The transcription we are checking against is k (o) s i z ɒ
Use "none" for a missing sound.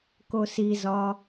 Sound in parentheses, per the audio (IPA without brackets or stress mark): o